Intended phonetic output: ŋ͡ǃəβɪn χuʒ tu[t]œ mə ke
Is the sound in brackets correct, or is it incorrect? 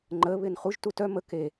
correct